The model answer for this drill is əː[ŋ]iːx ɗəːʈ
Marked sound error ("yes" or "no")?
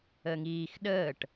no